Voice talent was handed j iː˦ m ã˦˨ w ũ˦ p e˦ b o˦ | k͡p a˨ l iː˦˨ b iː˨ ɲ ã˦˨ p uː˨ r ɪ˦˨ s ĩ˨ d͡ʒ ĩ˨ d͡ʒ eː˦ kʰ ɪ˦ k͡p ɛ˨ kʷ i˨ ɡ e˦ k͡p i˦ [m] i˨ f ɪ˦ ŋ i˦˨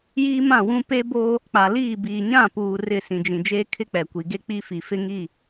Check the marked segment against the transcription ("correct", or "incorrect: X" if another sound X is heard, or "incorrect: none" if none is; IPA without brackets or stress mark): incorrect: f